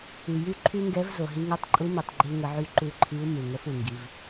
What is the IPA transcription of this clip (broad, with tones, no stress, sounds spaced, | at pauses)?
y˩ j y˧ ǃʰ y˧ ŋ ɡ ɛ˧˥ v z o˩ ɦ i˧ ŋ o˧˥ tˤ ǃʼ u˧˥ m u˩ tˤ ɡ͡ǃ i˧ l ŋ ə˩˧ ʕ y˧ ǃ u˧ ǃʰ i˧˥ u̯ m u˩ ŋ ə˧˥ f u˩ ŋ ɡ i˩˧ v